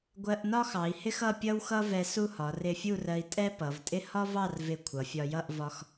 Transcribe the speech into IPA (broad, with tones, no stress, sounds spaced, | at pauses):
ɡʷ ɜ˧ ʔ n ɒ˥ x ɑ˩˧ i̯ h ɪ˥ x ʌ˥˧ pʲ ʌ˥ w x ʌ˥ v ɛ˧ s u˥˧ h ɒ˩˧ r ɪ˧ fʲ u˥˧ r ɜ˧ i̯ tʼ ɛ˥ p ʌ˩˧ v tʼ ɪ˥ h ɒ˥ v ɑ˥˧ r v ɪ˧˩ kʷʰ ʌ˩˧ fʲ ɒ˧ j ʌ˥˧ ʔ v ɒ˧ x